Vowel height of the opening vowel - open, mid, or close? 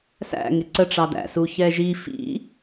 open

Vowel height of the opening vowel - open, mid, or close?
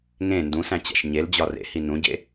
mid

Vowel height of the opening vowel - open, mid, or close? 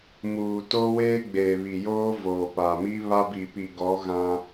close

